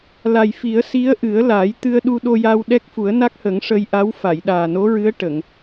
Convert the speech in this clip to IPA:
l a˨˩ j f i˨˩˦ ə̯ s i˧˥ ə̯ ʔ ɨ˨˩˦ ə̯ l aː˨˩˦ j t̪ ɨ˧ ə̯ ɗ u˧ ɗ o˧ j aː˧ w ɗ ɛ˦˥ k̚ f u˨˩˦ ə̯ n a˦˥ k̚ h ə˨˩˦ ŋ ʂ ə˧ j ʔ a˧˥ w f a˨˩˨ j ɗ aː˨˩ n o˧˥ ɹ ɨ˧˥ ə̯ ʈ ə˨˩˨ ŋ

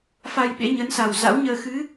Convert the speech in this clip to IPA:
f a˧ j ɓ ḛ˧˥ ɲ ə˨˦ n s a˨˩ w z a̰˧˥ w ɲ əː˧ x ɨ˨˦

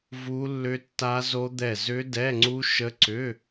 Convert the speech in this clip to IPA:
v u˦˥ lː ʏ˦˥ tː a˦˥ z o˦˥ d̪ ɛ˦˨ z ʏ˦˥ d ɛ˧˥˧ ŋ͡ǀ u˦˥ ʃ ə˦˥ ǀ ʏ˧˥˧

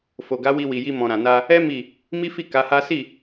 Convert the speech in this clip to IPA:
f o˨ ɡ a˨˦ w i˧ w i˨ j i˧ m ɔ̃˨ ɾ ã˨ n a˧ | ɛ˦ m i˦˨ | m i˦ f i˦˨ k a˨˦ h a˦ s i˦˨

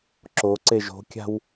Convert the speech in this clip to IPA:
ǁ o ǀ e ʒ o̤ kʲ a̤ w

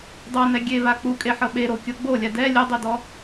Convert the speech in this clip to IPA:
dˤ ɤ n ɛ ɡʲ e v a k͡p u kʼ e ħ ɤ ɓ e ɾ o kʲ ɤ ɡ͡b o lʲ a d ɛ lʲ ɯ dˤ i d ɔ

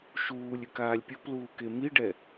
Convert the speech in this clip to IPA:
ʃ uː lʲ ʉ k aː lʲ pʲ o p l uː k e m i ɖ ɛ

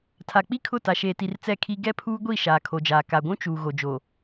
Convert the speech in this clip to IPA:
tʰ a˨ k͡p i˦ kʰ ʊ˦˨ t a˨ ʃ eː˨ t i˨ r t͡s ɛ˦˨ kʰ i˦ ɡ ɛ˦ pʰ uː˦ ɡʷ i˦˨ ʃ aː˨ kʰ o˨ d͡ʒ aː˨ k a˨ ɡʷ ũ˦ t͡ʃ uː˨ ɣ o˨ d͡ʒ o˨

